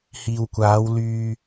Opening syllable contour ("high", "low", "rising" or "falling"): low